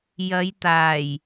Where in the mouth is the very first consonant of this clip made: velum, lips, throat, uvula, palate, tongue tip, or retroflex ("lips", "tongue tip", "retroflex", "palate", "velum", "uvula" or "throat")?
palate